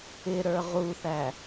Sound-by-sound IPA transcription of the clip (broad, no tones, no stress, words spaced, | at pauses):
ɪɾə˞ ʁuθæ